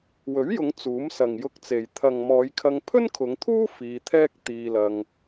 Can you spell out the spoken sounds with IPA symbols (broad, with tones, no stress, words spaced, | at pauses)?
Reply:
wɵ˨˥ɥjʊ˨˧ŋ t͡suː˨˥m sɐ˨ŋjʊ˧k̚t͡se˨j t̪ʰɐ˨ŋmɔː˨˧jkʰɐ˧ŋ pʰɵ˥nkʰʊ˨˧ŋt̪ʰuː˥ fiː˧t̪ʰɛː˥k̚ t̪iː˧lɐ˧ŋ